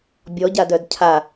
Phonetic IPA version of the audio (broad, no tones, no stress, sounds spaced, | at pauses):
bʲ ɔ ɟ a d œ d cʰ a